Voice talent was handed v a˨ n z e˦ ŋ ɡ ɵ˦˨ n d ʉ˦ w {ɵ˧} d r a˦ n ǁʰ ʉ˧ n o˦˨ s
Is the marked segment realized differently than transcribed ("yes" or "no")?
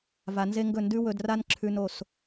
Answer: no